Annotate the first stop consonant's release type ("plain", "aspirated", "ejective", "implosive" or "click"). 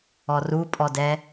ejective